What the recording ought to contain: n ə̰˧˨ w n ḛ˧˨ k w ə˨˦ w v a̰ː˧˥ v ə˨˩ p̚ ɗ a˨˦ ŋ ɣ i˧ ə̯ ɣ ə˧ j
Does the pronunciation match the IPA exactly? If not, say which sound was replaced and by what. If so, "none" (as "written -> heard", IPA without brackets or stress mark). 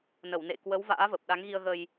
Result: ə̰˧˨ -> ə˧˩